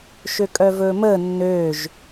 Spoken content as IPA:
ʃ ø kʼ œ v ɵː m əː nː øː ʒ

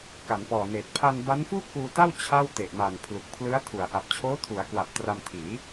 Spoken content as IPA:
k a˩˦ n p ɔː˨˩ n eː˨˩ t̚ pʰ a˧ n b a˦˥ n f uː˥˩ k̚ p uː˧ t a˥˩ w t͡ɕʰ a˥˩ w t e˨˩ ʔ m a˨˩ n pʰ l u˨˩ k̚ pʰ l ɯ˦˥ a̯ tʰ u˩˦ a̯ ʔ a˨˩ p̚ t͡ɕʰ oː˦˥ tʰ u˩˦ a̯ k w a˨˩ p̚ t r a˧ m tʰ iː˩˦

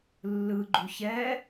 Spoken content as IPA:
lː ɯ ɡ͡ǃ u ç ɛ

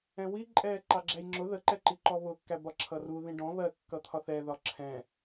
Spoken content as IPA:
ɛ̃ w i ǃʼ ɛː ǃ ɑ ɡ͡ǁ æ j ŋ͡ǁ ʊ ð ə ǃ ɛ ǃ i ǃ ɔ β ʊ kː æ b ɒ ǁʰ ʌ r u ð ĩ ɖ ɔ̃ β ɜ kː ʌ t̪ʰ ɒ θ ɛ ð ɒ ǁʰ ɛ̃

